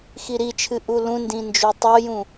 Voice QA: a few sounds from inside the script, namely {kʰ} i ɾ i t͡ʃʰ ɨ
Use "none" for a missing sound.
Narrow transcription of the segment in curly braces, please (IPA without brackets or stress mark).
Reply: x